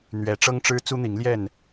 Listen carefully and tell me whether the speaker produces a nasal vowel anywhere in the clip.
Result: no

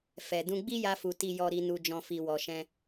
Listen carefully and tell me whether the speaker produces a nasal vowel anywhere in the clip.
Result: yes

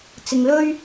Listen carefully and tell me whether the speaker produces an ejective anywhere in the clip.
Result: no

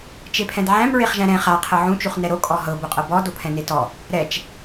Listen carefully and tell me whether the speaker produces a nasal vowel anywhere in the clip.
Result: yes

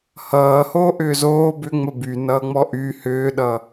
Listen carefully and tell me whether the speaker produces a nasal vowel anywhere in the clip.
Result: no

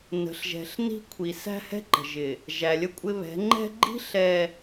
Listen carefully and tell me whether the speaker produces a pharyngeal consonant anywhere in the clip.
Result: no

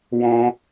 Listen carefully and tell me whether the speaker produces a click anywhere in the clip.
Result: no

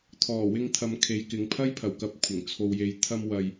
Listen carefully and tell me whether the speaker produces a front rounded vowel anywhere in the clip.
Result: no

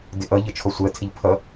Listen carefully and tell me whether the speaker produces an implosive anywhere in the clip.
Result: no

